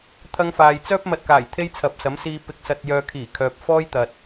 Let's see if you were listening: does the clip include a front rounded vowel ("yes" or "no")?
yes